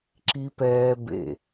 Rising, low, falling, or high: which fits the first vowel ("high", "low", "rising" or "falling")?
high